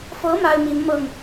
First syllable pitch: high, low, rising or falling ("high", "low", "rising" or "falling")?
rising